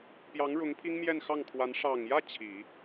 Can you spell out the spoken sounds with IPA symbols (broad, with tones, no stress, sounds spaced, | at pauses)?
p j ɑ˧˥ ŋ ɻ ʊ˧˥ ŋ pʰ i˥ ŋ m j ɛ˥˧ n x ɑ˥˩ ŋ kʰ w a˧˥ n ʂ ɑ˨˩ ŋ j ä˥˩ t͡ɕʰ i˨˩˦